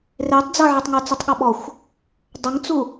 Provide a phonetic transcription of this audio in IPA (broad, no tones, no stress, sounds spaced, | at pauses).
r e tˤ d͡z ɤ ʕ e tˤ ŋ o t͡s ɯ tˤ ɠ ɔ ɓ ɔ xʷ | dˤ ɤ ŋ t͡s u